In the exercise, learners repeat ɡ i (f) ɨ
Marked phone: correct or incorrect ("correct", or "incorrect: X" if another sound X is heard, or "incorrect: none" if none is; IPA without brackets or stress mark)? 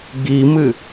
incorrect: m